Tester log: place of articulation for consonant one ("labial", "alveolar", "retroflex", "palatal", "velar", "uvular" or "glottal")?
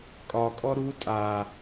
velar